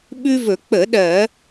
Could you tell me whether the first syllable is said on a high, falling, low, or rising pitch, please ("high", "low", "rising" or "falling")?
high